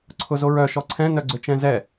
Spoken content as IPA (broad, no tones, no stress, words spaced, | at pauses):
ǀʰʊzoɹœ ʃɔǀʰɛ̃ nœɡ͡ǀʏt͡ʃɛ̃zɛ